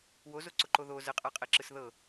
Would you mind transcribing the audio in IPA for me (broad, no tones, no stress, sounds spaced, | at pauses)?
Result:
w o z o ǀ ʊ ǃ o ð o z ə qʼ a qʼ ɛ ǁ ɯ s ð ɤ